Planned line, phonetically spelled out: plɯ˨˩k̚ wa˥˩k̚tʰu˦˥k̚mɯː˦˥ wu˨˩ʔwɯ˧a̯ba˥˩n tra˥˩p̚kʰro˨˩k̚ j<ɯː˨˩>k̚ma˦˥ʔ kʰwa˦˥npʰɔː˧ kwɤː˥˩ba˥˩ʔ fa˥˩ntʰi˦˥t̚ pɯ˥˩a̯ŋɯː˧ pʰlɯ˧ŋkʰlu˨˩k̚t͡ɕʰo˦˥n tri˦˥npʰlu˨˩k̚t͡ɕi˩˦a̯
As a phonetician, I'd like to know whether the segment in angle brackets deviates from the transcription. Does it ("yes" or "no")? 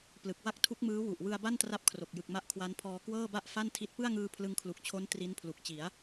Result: yes